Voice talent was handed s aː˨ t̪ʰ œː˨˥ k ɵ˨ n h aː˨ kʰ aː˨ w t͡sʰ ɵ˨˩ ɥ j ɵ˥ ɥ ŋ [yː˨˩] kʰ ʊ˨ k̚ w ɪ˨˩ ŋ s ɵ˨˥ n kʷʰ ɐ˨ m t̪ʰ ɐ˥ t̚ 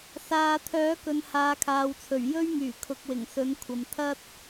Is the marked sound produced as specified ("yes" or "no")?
yes